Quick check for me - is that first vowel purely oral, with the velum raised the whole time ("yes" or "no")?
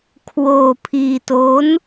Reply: yes